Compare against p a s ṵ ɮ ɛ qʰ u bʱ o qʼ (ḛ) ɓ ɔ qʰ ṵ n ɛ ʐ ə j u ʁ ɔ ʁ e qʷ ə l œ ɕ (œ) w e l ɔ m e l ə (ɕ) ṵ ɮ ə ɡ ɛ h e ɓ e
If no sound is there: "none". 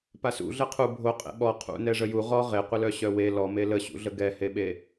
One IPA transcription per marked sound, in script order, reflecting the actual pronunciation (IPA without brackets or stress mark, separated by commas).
ḛ, œ, ɕ